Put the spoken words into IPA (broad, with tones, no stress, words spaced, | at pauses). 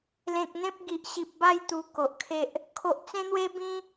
lẽ˨k̚n̪ẽ˦p̚ɡi˨ʔ ɕi˨p̚ba˥˧j t̪u˧ko˨ʔkʰe˦ʔ | kʰo˨ʔt͡sẽ˦n̪we˦bĩ˦